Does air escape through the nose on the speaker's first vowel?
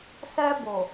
no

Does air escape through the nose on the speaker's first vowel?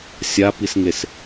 no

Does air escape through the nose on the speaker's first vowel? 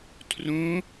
yes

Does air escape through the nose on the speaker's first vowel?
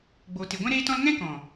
no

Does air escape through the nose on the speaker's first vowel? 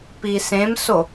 no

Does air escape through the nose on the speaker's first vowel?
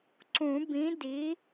yes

